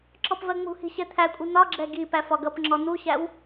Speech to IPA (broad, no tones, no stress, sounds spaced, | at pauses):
ǁ ɔ p v ɜ ŋ͡m ṳ h i̤ ɕ ɛ t̪ʰ æ kʷʼ i n̪ ɒ ɡ͡ǁ ɛ ɡ i p æ f ɒ ɡ ʌ p ŋ͡ǁ ɔ n̪ u ɕ æ w